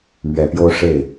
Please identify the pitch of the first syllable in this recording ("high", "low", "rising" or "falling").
low